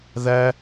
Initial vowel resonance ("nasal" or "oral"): oral